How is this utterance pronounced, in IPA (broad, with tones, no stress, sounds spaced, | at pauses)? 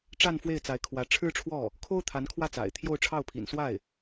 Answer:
ʈ͡ʂ a˥˧ n f w e˥˩ ɪ̯ t͡s a˧˥ ɪ̯ kʰ w ä˧˥ ʈ͡ʂʰ ɻ̩˥ ʈ͡ʂʰ w ɔ˥˩ | kʰ o˥ ʊ̯ t̪ʰ a˧˥ n kʰ w ä˥˩ t͡s a̰˨˩ ɪ̯ t̪ʰ j o˥˧ ʊ̯ ʈ͡ʂʰ ɑ˥˩ ʊ̯ pʰ ḭ˨˩ n s w a˥˩ ɪ̯